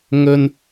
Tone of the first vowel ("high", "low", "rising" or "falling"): high